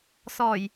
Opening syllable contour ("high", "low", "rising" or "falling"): low